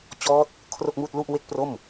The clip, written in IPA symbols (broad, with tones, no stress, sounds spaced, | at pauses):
t͡ɕ ɔː˦˥ t̚ | kʰ r o˥˩ k̚ m uː˥˩ t̚ l u˥˩ ʔ w e˥˩ k̚ p r o˥˩ m